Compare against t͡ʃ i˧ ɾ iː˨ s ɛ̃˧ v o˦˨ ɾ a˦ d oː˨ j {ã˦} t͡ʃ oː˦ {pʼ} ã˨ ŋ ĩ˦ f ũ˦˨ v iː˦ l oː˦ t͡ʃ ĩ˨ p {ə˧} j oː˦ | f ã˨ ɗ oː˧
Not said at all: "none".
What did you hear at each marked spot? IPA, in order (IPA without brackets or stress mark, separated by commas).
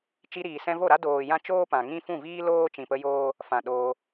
ã˧, p, ə˧